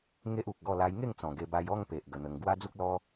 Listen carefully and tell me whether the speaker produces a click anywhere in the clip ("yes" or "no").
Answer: no